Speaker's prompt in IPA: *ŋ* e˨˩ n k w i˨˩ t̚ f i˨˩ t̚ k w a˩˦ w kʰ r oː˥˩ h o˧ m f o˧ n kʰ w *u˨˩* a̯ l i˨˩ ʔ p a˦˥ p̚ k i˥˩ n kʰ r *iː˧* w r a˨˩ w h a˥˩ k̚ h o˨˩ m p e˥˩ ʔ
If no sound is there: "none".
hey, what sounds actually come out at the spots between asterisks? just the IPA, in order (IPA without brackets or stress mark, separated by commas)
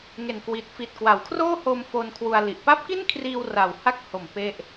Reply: ŋ, u˧, iː˧